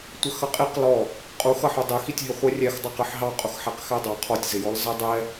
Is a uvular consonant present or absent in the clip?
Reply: present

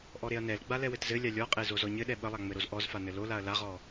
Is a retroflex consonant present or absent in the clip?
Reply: absent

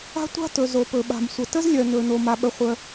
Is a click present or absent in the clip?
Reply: absent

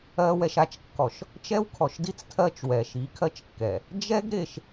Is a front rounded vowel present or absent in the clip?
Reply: absent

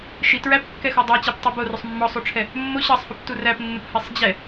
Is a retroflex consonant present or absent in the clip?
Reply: present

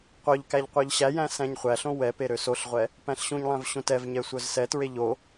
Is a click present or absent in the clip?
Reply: absent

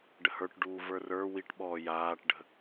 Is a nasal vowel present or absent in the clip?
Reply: absent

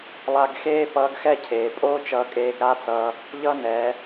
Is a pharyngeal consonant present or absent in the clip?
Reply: absent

